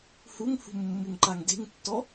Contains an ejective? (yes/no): no